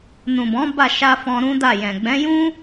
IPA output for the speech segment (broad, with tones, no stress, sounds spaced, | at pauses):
n ũ˨ b ɔ̃˨˦ b a˦˨ ʃ a˧ f ɔ̃˧ ɾ ũ˦ d a˦˨ j ɛ̃˨ ɡ͡b ɛ̃˨˦ j ũ˦